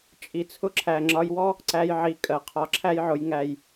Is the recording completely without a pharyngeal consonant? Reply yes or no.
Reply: no